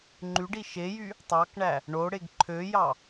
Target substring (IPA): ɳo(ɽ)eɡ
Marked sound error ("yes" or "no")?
no